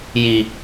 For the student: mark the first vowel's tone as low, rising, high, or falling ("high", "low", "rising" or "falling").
low